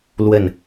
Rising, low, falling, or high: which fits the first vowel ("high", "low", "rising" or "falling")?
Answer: falling